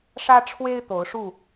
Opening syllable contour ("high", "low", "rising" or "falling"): high